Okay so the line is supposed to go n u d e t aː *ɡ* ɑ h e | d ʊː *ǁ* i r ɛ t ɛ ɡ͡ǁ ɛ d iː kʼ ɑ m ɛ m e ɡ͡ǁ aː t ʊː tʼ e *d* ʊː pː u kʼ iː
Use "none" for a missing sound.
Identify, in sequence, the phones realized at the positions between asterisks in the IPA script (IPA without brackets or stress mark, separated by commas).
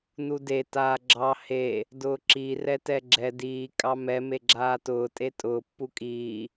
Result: ɡ͡ǁ, ǁ, tʼ